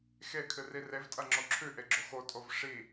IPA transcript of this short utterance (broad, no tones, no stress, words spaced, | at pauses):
xekʰɨ rirevtʼɐ ŋ͡ǁoǁʰʉʔe ɡ͡ǁoxotʼov ʂi